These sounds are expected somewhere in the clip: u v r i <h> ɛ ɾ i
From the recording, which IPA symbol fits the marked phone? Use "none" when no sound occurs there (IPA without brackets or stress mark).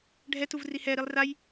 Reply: h